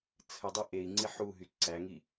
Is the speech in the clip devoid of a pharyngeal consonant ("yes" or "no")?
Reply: no